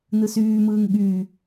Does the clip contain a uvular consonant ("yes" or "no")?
no